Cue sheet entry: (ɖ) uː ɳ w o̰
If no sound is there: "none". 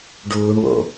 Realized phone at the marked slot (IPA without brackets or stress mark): ɖ